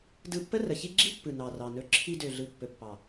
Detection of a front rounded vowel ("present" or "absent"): present